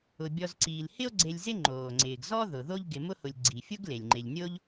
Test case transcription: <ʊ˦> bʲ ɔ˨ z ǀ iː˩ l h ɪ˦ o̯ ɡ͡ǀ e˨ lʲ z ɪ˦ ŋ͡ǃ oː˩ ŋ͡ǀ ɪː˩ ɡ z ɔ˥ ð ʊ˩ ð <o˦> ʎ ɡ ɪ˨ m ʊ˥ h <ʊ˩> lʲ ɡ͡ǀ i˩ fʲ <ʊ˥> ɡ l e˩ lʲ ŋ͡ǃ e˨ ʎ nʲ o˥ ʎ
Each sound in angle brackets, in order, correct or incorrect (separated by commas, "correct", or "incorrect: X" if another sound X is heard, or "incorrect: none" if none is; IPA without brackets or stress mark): incorrect: ʊ˩, correct, incorrect: ʊ˨, correct